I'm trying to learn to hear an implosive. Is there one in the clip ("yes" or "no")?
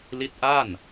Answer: no